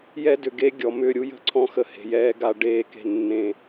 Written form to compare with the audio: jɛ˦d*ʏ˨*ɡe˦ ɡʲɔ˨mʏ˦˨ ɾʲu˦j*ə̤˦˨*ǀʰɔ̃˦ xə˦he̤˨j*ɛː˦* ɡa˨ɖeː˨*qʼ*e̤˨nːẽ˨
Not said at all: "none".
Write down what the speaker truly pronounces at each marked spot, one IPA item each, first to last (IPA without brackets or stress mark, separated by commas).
ʏ˨, ə̤˦˨, ɛː˦, k